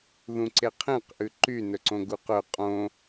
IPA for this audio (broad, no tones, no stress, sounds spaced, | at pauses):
ð ũ ǀ e qʰ ẽ q ʔ ʉ ǃ y n ɵ ǀ õ ɡ u q ɵ qʼ õ